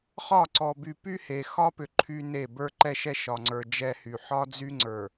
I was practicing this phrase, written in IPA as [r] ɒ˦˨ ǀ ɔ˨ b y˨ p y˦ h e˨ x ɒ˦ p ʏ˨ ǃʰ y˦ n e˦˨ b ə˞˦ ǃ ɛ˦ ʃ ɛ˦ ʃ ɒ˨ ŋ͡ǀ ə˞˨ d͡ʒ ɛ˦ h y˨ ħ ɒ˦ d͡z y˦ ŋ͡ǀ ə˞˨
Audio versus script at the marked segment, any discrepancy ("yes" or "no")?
yes